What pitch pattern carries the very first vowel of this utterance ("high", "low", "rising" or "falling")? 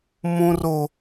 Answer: high